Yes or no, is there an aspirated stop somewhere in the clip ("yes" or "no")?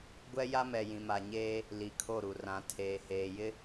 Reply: yes